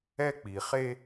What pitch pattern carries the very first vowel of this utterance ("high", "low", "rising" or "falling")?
high